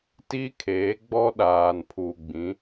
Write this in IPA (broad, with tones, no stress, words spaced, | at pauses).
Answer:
ti˦kʰeː˨˦ɡ͡bɔ˦ ɗaː˨npʰu˨ ɡ͡bĩ˨˦